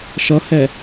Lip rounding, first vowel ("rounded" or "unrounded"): unrounded